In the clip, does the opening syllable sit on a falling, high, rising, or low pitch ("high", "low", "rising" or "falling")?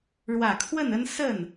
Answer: low